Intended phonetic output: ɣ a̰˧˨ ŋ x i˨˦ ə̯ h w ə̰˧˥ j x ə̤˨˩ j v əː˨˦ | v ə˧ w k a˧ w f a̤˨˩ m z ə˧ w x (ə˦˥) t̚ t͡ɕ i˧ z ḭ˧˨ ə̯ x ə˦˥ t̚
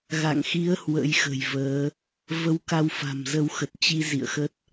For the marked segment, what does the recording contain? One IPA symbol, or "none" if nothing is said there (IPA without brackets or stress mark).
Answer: ə˨˩